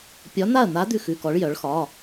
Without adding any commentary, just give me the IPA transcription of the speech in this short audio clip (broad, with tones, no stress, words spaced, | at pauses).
pʲɒ˧˥n̪a˥˨ɐ̯n̪a˧˥ d̪ʉ˥˨xʉ˧˥˧kɔ˧˥ɭ jœ˧˥ɭxɒ˧˥˧